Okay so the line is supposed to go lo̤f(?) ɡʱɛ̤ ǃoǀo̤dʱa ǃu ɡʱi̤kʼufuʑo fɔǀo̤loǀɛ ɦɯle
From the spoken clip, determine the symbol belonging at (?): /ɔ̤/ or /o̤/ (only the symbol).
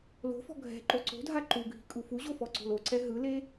ɔ̤